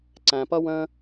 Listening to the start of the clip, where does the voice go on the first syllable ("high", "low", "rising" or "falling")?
low